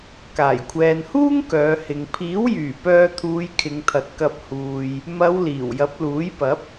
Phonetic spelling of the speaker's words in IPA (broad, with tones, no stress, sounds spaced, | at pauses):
k aː˨˩ j kʷʰ ɛː˨ n h uː˥ ŋ k œː˨˧ h ɪ˨ ŋ pʰ iː˨˥ w j yː˨˩ p œː˧ t̪ʰ uː˨˧ j kʰ ɪ˨˧ ŋ t̪ʰ ɐ˨ t̚ k ɐ˧ p̚ h uː˨ j | m ɐ˨˧ w l iː˨˩ w j ɐ˨˥ p̚ l uː˨˥ j p ɐ˨˥ p̚